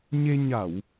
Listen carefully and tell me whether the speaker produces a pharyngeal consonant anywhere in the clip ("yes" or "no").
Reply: no